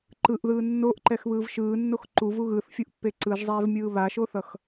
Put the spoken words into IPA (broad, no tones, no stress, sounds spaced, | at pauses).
ǃ ɯ ʔ ð ɯː nː o ʔ ǃ ɛ x β ɯː v ʃ ɯː nː o x ǃ u v u ɣ ɯ θ fʲ u ʔ pː e ǀ ɯ ʒ zˤ ɛː v mʲ ɯː β a ʃ o θ ʌ x